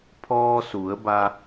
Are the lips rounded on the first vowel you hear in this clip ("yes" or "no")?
yes